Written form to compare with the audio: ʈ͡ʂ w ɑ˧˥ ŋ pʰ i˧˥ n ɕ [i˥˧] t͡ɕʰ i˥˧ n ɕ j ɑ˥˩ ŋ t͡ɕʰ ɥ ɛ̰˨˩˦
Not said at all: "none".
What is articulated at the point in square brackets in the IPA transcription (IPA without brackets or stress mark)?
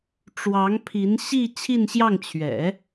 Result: i˥˧